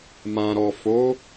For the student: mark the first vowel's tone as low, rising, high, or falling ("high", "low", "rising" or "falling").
low